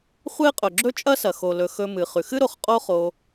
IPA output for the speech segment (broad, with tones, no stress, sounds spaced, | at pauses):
χʷ e˦ qʼ ɵ˩ ɡ͡ǁ ɵ˥ t͡ʃʼ ɐ˥ s ɐ˩ x o˩ l ɵ˩ x ɵ˨ m ɨ˩ χ ʉ˩ x ɨ˦ ɾ o˨ χ qʼ o˦ χ o˨